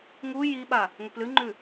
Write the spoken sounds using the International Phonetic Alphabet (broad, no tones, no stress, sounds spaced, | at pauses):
ŋ u j i ɓ a | ŋ ɵ p l ɨ ŋ͡ǃ ʉ